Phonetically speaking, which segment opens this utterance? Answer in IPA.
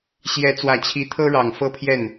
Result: ɕ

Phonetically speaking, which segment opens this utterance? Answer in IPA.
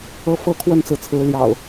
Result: ɤ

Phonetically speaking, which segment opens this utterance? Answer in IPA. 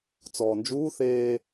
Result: t͡s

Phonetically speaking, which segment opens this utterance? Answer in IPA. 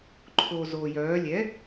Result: ǃʰ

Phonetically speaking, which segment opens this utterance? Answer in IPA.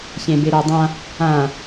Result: ç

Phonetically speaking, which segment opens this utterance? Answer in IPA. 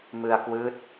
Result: m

